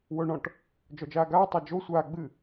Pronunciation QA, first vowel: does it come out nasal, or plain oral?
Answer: oral